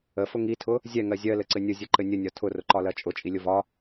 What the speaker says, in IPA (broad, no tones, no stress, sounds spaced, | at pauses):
ə f ʊ ŋ i tʰ ʊ | zʲ ɛ ŋ ɜ zʲ ɜ l ɘ ǀ ɘ nʲ ʊ zʲ ɘ ǃ ɘ nʲ ə nʲ ɒ tʰ ʊ r ʊ ǃ ɒ l ɜ t͡ʃʼ ʊ t͡ʃʼ i lʲ ʊ v ɒ